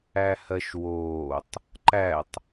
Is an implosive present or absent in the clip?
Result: absent